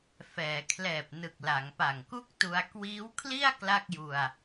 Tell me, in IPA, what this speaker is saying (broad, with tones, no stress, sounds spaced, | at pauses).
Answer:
f ɛː˩˦ kʰ l ɛː˨˩ p̚ n ɯ˨˩ k̚ l a˩˦ ŋ p a˨˩ ŋ k u˥˩ k̚ t u˧ a̯ k w iː˦˥ w kʰ l i˥˩ a̯ k l a˥˩ k̚ j u˧ a̯